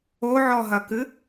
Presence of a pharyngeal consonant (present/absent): present